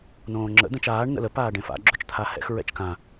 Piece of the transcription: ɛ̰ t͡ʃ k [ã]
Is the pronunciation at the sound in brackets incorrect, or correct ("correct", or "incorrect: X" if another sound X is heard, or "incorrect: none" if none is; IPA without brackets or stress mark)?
correct